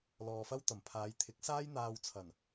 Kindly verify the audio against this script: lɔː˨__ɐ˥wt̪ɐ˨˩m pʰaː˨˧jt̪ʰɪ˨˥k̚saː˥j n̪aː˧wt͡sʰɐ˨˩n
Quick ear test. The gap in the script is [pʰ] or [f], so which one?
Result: f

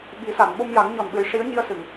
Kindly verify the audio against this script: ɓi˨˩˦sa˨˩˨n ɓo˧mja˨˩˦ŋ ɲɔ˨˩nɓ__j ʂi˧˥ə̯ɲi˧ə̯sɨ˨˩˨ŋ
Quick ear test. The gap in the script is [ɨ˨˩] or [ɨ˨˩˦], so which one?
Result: ɨ˨˩˦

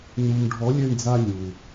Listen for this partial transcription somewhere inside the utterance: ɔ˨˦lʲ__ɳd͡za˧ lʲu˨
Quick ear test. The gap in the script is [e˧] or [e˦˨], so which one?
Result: e˦˨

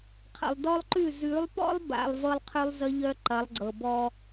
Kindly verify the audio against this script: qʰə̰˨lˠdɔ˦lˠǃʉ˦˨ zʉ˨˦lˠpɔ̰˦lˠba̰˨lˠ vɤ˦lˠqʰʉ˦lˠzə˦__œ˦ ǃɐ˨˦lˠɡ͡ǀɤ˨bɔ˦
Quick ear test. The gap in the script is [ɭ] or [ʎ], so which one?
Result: ʎ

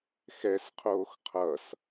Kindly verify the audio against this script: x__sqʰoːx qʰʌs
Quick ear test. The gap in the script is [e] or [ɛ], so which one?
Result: ɛ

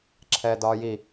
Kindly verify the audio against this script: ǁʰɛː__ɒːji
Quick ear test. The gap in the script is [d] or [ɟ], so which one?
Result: d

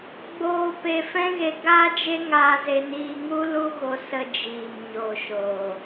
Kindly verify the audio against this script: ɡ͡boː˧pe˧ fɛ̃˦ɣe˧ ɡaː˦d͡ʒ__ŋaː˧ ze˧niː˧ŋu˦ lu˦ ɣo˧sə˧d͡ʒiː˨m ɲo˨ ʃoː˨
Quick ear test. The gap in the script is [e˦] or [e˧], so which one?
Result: e˦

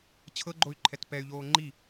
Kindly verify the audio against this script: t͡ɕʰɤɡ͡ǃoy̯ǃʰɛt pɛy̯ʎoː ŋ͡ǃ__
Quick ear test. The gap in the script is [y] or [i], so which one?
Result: i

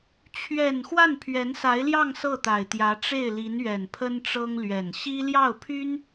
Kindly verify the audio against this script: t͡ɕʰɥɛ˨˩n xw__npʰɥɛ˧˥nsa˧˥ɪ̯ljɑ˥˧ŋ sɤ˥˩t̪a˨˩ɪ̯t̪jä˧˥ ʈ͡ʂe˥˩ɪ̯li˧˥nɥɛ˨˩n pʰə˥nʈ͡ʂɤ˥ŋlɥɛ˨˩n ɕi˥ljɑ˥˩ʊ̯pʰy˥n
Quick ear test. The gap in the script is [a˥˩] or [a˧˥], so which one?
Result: a˥˩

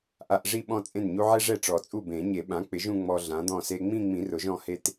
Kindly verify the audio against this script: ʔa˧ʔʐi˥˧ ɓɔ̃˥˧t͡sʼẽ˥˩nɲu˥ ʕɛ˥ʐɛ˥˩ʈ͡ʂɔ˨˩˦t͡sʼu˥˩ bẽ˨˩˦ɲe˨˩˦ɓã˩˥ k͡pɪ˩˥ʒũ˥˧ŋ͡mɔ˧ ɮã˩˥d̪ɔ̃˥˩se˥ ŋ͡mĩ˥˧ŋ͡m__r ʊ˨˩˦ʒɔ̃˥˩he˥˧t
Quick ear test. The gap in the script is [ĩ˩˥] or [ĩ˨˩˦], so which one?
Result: ĩ˨˩˦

